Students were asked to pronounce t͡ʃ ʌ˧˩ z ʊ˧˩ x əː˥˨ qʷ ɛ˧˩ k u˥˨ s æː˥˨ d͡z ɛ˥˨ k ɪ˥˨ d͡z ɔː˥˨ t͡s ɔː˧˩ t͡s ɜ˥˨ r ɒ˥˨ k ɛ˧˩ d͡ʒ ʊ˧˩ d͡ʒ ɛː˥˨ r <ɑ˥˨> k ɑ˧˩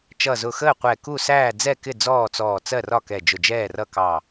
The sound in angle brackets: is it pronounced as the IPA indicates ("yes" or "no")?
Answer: no